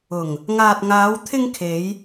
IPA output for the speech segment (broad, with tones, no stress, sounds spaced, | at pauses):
ʊ˨˩ ŋ | ŋ aː˨ t̚ ŋ aː˨˧ w t̪ʰ ɪ˧ ŋ kʰ e˨˧ j